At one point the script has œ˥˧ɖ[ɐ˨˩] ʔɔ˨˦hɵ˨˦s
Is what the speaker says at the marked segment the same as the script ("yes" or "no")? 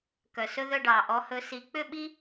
no